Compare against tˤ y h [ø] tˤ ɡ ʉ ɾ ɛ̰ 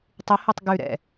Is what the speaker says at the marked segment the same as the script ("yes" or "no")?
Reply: yes